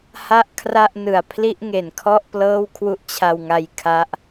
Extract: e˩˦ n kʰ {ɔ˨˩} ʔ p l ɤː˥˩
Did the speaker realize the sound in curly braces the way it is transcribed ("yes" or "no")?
no